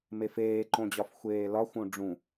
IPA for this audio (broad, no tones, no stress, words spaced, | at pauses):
mefeːǃõd͡ʑɒf xʷeːlɒxʷõ ɖ͡ʐũ